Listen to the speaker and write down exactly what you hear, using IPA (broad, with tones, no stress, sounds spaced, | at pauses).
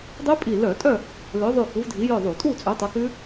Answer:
dˤ ʉ˦˥ pʼ i˧˩ l œ˧˩˧ tʼ œ˥˨ | l ø˨˥ ðˤ ʉ˧˩ k u˨˥ v dʱ i˨˥ j œ˥˨ ðˤ u˧˩˧ tʼ u˥˨ t͡sʼ ʉ˨˥ tˤ œ˨˥ k ʉ˦˥